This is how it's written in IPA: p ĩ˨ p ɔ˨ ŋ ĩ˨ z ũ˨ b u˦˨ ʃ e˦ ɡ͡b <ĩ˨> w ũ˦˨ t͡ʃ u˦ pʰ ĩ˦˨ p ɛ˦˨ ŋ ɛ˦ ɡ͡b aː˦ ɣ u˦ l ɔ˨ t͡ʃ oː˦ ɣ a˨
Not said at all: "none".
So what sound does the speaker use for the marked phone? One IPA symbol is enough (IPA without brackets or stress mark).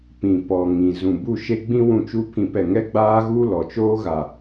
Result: ĩ˦